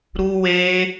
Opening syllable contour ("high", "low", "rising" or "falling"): high